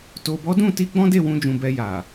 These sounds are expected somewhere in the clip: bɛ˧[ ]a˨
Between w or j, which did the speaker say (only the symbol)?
j